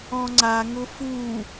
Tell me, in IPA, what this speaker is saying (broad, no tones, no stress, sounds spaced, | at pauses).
ɔ̃ ŋ͡ǀ a ŋ ʊ f u